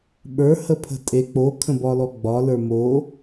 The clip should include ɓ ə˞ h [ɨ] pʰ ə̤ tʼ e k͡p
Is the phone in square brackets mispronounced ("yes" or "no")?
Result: yes